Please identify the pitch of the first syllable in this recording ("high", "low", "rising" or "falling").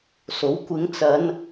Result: rising